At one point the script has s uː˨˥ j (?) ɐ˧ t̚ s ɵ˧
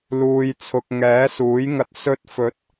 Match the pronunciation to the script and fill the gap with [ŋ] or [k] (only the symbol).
ŋ